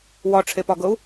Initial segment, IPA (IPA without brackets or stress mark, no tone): w